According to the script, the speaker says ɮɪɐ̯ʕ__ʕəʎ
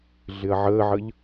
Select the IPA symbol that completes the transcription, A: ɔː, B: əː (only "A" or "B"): B